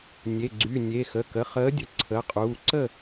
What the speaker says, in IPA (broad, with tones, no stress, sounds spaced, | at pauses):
nʲ e˩˧˩ ɡ͡ǀ y˩˧˩ nʲ e˩˧˩ x ə˩˧˩ k ə˩˧˩ χ əː˨˥ dʲ ə˩˧˩ ǀʰ ə˩˧˩ qʼ uː˩˧˩ ǀ ə˥˨